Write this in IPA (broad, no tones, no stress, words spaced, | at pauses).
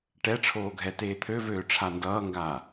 ʈɛʈ͡ʂʰoːɡʱɛ teːt̪ʰøvøː ʈ͡ʂʰandʌːŋɡaː